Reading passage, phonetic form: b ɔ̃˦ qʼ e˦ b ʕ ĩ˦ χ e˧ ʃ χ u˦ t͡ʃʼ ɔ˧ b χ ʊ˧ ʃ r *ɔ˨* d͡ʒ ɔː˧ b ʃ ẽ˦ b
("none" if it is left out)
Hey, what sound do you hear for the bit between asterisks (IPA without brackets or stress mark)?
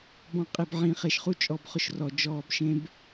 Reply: ɔ˨